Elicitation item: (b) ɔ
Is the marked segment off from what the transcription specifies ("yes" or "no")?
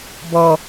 no